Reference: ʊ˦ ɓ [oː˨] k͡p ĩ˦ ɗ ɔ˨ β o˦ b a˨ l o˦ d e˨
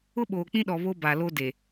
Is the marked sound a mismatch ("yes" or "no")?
no